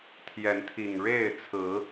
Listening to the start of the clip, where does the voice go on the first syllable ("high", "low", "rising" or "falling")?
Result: rising